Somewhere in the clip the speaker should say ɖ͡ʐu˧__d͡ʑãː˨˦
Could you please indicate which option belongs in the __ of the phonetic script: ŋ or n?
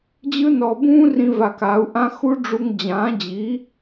ŋ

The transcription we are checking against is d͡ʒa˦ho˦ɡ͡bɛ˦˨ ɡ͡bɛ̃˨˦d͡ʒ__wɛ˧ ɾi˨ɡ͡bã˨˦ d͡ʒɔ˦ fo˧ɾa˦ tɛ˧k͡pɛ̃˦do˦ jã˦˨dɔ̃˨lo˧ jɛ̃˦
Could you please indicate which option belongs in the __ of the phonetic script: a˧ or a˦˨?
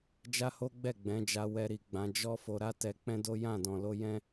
a˧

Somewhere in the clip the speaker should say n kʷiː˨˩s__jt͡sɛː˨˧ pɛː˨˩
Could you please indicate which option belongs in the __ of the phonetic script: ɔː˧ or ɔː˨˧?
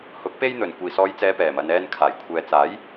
ɔː˨˧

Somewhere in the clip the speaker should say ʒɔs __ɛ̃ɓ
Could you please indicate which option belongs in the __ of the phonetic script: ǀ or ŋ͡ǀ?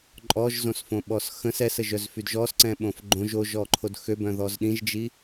ǀ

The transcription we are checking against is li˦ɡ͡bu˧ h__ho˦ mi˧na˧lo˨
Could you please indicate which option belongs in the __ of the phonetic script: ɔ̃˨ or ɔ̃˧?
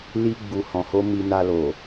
ɔ̃˧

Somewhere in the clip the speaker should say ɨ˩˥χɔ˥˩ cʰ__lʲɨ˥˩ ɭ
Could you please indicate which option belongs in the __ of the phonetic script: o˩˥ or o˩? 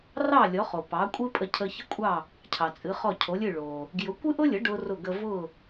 o˩˥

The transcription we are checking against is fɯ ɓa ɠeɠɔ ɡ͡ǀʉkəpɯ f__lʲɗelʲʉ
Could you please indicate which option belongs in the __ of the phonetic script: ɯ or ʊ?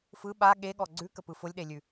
ʊ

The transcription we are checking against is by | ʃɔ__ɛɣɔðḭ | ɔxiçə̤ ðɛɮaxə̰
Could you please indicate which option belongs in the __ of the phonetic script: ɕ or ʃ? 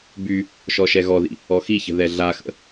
ʃ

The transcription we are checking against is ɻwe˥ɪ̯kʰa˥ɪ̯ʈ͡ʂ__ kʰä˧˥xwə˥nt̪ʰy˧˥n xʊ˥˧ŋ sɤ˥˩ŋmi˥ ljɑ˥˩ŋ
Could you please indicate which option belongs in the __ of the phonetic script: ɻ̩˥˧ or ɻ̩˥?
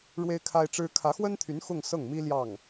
ɻ̩˥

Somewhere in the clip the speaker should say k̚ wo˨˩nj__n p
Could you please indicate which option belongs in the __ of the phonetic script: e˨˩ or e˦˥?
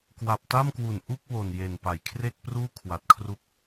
e˨˩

